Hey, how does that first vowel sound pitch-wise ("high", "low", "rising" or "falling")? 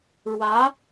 rising